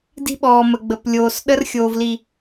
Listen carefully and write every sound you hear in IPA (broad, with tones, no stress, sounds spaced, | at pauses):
d i̤˦ ɓ ɔː˨ m ə˨ ɡ͡b ə˨ p lʲ oː˨ s ɗ ə˦ r xʲ oː˨ v l i˨